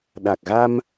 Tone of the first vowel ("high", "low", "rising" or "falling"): low